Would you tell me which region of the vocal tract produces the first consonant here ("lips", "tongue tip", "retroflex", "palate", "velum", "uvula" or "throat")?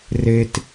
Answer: tongue tip